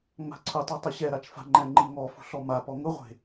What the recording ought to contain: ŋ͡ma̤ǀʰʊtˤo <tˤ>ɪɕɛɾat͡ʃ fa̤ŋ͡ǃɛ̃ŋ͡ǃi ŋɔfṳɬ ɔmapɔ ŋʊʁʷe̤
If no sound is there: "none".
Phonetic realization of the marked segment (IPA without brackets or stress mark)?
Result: tˤ